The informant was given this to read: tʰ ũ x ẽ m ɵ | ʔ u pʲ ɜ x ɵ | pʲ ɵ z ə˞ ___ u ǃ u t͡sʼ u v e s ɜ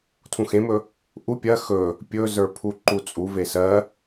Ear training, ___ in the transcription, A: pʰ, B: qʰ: A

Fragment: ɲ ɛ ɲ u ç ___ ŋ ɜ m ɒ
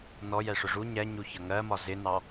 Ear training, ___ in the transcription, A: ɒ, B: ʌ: B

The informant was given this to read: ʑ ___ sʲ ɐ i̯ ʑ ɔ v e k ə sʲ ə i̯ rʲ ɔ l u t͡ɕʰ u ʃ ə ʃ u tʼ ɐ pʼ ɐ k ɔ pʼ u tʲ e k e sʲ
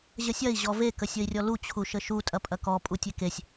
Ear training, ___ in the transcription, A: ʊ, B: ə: B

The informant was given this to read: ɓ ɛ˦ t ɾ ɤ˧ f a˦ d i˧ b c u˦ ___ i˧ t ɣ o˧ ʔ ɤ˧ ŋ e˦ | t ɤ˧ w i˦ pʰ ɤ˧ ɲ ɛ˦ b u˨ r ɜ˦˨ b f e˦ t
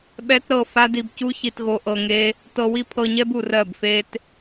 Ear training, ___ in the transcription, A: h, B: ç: B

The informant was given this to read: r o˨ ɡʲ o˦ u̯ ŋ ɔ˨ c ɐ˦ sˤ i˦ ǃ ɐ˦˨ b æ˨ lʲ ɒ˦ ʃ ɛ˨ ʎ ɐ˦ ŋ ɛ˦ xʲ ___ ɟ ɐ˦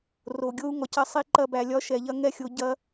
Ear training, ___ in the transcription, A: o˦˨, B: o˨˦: B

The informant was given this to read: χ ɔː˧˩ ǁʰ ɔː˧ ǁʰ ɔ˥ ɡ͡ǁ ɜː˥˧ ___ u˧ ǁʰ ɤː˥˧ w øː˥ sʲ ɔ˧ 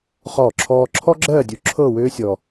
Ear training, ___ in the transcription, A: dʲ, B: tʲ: A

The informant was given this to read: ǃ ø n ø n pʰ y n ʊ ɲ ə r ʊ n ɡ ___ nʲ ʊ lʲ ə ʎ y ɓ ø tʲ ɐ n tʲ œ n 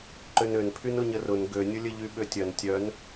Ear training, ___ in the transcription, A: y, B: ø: B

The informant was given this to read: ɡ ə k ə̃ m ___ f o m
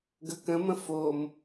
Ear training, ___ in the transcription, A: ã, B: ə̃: B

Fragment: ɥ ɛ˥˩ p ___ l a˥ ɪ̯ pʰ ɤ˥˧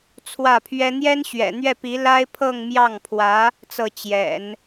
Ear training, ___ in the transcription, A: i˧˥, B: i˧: A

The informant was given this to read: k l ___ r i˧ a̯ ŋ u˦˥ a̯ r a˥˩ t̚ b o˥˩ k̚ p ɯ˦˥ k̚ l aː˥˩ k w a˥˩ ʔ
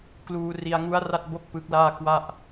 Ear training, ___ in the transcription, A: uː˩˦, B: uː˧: B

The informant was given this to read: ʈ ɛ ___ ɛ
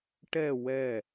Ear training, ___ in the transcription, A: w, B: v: A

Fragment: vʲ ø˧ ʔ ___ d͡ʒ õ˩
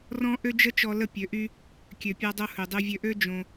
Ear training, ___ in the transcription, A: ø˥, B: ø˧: A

